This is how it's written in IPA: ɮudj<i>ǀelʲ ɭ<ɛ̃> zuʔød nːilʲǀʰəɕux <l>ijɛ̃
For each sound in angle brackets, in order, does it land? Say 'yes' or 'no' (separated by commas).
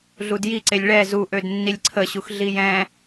yes, no, no